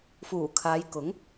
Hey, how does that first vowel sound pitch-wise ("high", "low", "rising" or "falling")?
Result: low